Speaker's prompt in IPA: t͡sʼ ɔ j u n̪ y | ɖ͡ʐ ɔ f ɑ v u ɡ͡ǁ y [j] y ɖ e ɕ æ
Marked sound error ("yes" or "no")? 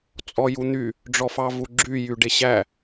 no